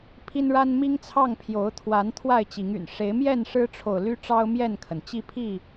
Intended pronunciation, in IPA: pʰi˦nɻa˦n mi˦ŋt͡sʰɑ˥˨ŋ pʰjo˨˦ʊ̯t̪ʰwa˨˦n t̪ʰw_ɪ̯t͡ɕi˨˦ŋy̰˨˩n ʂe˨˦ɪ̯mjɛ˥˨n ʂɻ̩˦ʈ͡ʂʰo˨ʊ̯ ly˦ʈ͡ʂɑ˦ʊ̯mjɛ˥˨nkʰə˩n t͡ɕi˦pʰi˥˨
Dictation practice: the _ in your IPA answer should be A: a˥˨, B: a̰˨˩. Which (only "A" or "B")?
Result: A